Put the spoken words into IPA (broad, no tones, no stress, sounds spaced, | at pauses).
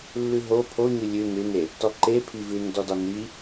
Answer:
lː ʉ ɦ o pʰ o ɲ ʉ lʲ ʉ n ʉ n e | t ɔ ǃ e pʰ i v ʉ n d ɔ d ɒ n i